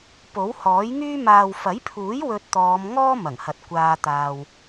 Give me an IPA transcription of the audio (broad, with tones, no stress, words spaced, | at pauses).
po˨˥whɔː˨˥jŋyː˥ maː˨wfɐ˨˥jpʰuː˨˥j wɵ˧t̚t̪ɔː˨˧m ŋɔː˥mɐ˨˩ŋhɐ˨t̚ kʷaː˧ t̪aː˧w